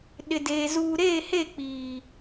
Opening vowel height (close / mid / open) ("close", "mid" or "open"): close